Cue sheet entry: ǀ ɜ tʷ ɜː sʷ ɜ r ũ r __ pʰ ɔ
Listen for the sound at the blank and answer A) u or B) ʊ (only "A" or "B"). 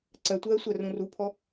A